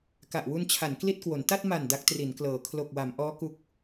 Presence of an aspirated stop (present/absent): present